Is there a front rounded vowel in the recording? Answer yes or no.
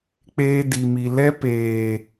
no